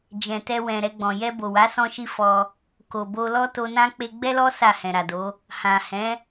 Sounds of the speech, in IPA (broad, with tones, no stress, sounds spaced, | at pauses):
d͡ʒ ɛ̃˨ t ɛ˧ w ɛ̃˨ ɾ ɛ˧ ɡ͡b ɔ̃˨ j ɛ˧ b o˨ w a˨˦ s ɔ̃˦ ʃ i˦ f ɔ˧ | k o˨ b o˧ l ɔ˦ t o˧ n ã˦ k͡p e˧ ɡ͡b ɛ˦ l ɔ˦ s a˦˨ h ɛ̃˨ ɾ a˨ d o˨˦ | h ã˨ h ɛ̃˨˦